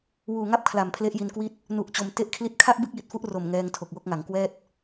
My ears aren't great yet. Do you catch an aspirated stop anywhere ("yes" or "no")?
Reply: yes